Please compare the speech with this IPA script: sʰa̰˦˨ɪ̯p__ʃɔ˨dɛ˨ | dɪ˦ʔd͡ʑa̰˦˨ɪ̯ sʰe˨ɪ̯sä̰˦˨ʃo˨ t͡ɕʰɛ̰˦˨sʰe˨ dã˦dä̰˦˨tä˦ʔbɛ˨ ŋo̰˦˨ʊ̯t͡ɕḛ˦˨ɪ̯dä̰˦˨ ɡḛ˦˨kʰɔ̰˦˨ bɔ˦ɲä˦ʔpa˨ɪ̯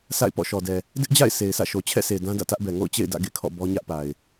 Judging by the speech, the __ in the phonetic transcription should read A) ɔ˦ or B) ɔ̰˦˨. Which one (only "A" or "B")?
B